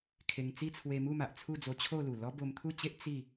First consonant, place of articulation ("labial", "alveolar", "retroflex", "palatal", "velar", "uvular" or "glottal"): velar